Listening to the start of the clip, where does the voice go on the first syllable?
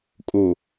low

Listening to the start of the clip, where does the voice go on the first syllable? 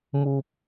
high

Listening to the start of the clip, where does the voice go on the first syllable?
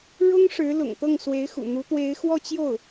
high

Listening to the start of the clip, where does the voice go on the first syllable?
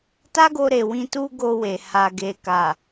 high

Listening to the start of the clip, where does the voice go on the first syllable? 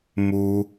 high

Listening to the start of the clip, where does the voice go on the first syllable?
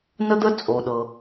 high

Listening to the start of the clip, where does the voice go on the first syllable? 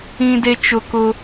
high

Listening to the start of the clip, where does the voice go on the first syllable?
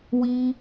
high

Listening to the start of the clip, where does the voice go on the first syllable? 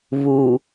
low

